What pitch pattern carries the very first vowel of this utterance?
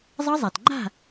high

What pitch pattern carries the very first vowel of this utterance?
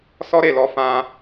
high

